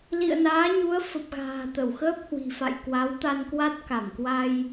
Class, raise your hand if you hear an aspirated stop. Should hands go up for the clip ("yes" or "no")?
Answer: no